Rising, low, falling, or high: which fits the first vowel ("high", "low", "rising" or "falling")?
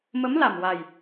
rising